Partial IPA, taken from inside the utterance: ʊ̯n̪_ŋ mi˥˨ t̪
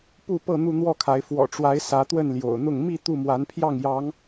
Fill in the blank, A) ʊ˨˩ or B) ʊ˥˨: B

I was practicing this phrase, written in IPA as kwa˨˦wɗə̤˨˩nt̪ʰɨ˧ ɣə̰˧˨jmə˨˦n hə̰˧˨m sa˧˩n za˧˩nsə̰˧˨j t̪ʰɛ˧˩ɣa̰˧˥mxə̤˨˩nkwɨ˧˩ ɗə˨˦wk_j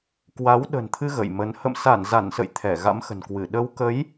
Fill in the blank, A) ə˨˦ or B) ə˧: A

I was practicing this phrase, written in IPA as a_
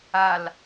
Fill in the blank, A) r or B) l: B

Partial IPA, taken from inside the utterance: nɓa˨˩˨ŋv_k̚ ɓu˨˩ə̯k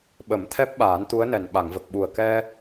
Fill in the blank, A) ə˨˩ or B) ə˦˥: A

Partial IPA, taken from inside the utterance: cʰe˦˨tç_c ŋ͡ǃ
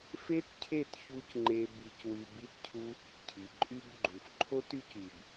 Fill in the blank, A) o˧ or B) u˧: B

